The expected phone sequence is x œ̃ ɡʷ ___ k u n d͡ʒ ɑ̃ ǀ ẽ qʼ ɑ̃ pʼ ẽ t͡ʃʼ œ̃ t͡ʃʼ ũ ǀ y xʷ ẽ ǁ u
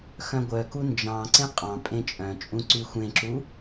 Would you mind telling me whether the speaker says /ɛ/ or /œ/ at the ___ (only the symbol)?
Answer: œ